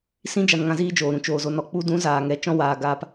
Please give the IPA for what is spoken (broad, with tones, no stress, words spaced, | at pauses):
sĩ˦ d͡ʒa˧nŋã˧ziː˦d͡ʒoː˨ ɾũ˨ t͡ʃoː˨zo˧nɔ˨ k͡pu˧dũ˨˦ zaː˨ŋɛ˨˦ t͡ʃɔ̃˧waː˨ ɡaː˧p